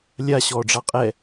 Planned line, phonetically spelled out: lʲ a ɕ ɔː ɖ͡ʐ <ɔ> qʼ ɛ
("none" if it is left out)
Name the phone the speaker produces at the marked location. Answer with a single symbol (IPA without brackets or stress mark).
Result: ɑ